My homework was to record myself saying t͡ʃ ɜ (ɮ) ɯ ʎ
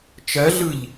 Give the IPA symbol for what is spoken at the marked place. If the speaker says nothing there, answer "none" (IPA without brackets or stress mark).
ɮ